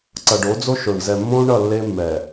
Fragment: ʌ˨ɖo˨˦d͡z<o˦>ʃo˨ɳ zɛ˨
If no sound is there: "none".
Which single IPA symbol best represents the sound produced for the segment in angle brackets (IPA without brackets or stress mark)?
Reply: o˦